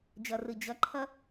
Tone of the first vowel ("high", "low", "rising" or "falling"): low